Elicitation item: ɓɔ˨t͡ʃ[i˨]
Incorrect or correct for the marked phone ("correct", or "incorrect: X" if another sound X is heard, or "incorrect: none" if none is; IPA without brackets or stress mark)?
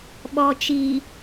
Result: correct